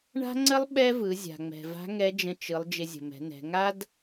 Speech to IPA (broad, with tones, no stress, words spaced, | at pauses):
ɳa̤˥ŋ͡ǀə˥lˠ ɓɛ˥vɯ˩˧ zʲa̤˩ŋ͡mɛ̤˩va̤˧˥ ŋɛ˧˥d͡ʒə̃˧t͡ʃɯ˩˧lˠ d͡ʒɪ˧zʲə̤˩mɛ̤˩˧nɛ̤˩˧ ŋa˥d